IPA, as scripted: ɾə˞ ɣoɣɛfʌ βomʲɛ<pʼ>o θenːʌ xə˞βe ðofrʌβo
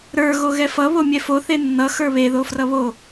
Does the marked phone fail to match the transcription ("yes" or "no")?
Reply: yes